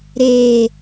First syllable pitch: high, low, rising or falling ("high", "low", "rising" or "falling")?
low